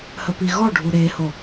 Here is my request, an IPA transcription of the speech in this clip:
h ə p i ɣ ɔ ɖʱ u ɾ e h o

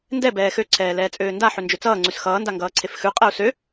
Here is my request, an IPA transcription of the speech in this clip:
n d ɛ b ɛː x ø ǀʰ ɛː l ɛː t͡sʼ øː n d a ħ ø n d͡ʒ ø t͡s ʌː ŋ͡ǀ ʉ s x ʌː n d a ŋ ɡ ʌː ǀʰ e f x ʉ qʼ ɛ u̯ s ø

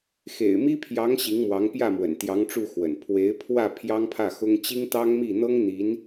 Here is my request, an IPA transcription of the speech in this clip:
x ḛ˨˩ ɪ̯ m i˥ pʰ j ɑ˧˥ ŋ ɕ i˧˥ ŋ m w ɑ˧˥ ŋ p j ä˥˩ m w ə̰˨˩ n t̪ j ɑ˧˥ ŋ ʈ͡ʂ u˥˩ x w ə̰˨˩ n pʰ w e˧˥ ɪ̯ pʰ w ä˥˩ pʰ j ɑ˥ ŋ pʰ ä˥˩ x ʊ˥ ŋ t͡ɕ i˥ ŋ t̪ ɑ˥ ŋ m i˥˩ n̪ ɤ˥ ŋ n̪ i˧˥ n

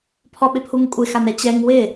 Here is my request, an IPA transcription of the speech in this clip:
pʰ ɔ ɓ ɪ pʰ u ŋ kʷʼ ɪ x a n ɛ t͡ɕ ɛ ŋ w ɪ

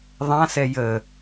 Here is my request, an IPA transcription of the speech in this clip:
ðˤ ã s ɛ j ə

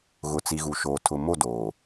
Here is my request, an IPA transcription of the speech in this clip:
ɣ ʊ˨ t͡s i˨ ɣ u˨ ʃ oː˨ tʰ ʊ˨ m o˦˨ d oː˨

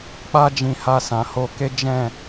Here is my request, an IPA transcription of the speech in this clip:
k͡p a˦ d͡ʒ ĩ˧ h a˧ s ã˨ h o˧ k e˦ d͡ʒ ɛ̃˦˨

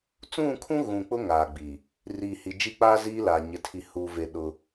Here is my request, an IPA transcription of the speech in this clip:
t͡s ũ˦˨ kʰ ũ˦ ɣ ũ˨ k͡p ʊ˦ ŋ aː˨ ɡ͡b iː˨ | r iː˨ h i˨ d͡ʒ i˦ k͡p aː˦ z iː˦ l aː˨ ɲ ɪ˨ tʰ i˨ h u˨ v e˨ ɗ ʊ˦

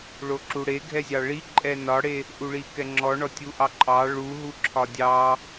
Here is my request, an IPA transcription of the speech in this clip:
ɭ o ǁ u ɽ e ɡʱ ɛ zʲ ɑ ɭ i ǃʼ ɛ n ɒ ɽ e | ʔ u ɭ i k ɛ ŋ͡ǁ ɔ ɳ ɔ tʲ u ʔ ɑ ǃʼ ɑ ɭ u ɦ u ǁʰ ɒ dʲ ɑ

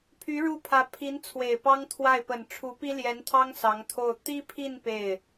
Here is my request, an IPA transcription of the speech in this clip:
pʰ y˧˥ ɻ u˥˩ pʰ ä˧˥ pʰ i˧˥ n t͡sʰ w e˨˩ ɪ̯ p ɑ˥ ŋ t̪ʰ w a˥˩ ɪ̯ p ə˨˩ n ʈ͡ʂʰ u˧˥ p i˥ l j ɛ˧˥ n t̪ʰ ɑ˥ ŋ s ɑ˧˥ ŋ t̪ʰ o˥˩ ʊ̯ t̪ i˥ pʰ i˥˧ n p e˥˩ ɪ̯

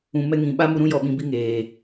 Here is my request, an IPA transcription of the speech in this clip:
ũ˨ m ɛ˧ ŋ ĩ˨ ɓ a˦ m u˧ ɾ ũ˦ j ɔ˧ ɓ ĩ˧ b i˦ ŋ eː˨

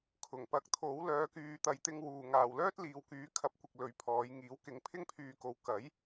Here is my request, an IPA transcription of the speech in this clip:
kʰ ʊ˨˩ ŋ p ɐ˨˥ k̚ t̪ʰ o˨˥ w l œː˨˧ k yː˨ t̪ ɐ˨ j t̪ ɪ˧ ŋ w uː˨ ŋ aː˨ w l œː˥ t̚ l iː˨ w k yː˨˥ kʰ ɐ˨˥ p̚ kʷ ɪ˨ k̚ l ɵ˨˧ ɥ pʰ ɔː˨˧ j ŋ iː˨˥ w k ɪ˨˥ ŋ pʰ ɪ˥ ŋ pʰ yː˧ k o˨˧ w k ɐ˨˥ j

